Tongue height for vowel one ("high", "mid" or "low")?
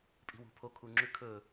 high